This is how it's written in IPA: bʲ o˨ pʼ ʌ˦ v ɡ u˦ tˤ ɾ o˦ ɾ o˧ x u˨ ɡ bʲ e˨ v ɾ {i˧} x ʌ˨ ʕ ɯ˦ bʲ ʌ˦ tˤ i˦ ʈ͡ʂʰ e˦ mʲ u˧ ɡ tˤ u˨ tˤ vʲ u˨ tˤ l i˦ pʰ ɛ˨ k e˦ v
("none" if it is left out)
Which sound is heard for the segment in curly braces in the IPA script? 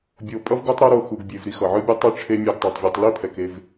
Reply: i˧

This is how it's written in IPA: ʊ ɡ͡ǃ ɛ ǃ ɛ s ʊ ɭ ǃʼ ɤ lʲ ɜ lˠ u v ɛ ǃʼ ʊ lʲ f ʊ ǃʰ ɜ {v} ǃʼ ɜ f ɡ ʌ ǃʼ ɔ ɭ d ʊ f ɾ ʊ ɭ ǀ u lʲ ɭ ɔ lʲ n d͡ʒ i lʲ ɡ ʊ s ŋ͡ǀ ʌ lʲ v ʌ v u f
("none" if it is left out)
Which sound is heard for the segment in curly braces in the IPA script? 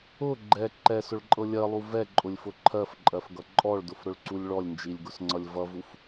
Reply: f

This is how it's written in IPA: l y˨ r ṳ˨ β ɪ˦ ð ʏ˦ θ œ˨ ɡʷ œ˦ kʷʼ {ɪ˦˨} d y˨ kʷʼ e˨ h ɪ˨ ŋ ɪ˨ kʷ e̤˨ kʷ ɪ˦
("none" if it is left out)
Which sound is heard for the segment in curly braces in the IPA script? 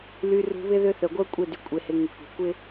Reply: ɪ˦˨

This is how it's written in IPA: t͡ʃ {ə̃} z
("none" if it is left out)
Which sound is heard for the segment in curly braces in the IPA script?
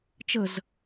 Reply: ə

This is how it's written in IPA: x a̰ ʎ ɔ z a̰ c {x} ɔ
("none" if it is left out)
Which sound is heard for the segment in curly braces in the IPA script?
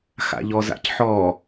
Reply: ħ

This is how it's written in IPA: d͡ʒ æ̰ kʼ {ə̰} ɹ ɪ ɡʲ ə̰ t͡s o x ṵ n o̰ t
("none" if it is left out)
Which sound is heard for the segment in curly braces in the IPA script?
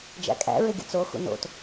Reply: æ̰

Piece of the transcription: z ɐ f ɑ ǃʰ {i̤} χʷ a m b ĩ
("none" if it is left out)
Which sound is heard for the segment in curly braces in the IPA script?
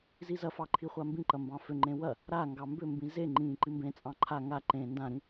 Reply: i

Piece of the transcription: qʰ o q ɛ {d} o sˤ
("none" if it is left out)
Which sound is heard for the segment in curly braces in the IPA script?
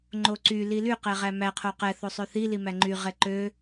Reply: θ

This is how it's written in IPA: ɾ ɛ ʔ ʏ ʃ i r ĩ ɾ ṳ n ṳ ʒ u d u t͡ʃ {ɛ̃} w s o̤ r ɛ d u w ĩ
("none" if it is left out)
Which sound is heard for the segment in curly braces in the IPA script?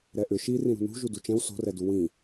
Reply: ɛ̃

